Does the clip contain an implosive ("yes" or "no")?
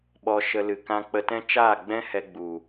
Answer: yes